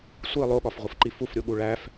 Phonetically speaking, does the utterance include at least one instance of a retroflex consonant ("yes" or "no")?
yes